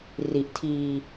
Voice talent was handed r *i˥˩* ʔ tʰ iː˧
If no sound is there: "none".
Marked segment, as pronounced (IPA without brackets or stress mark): i˨˩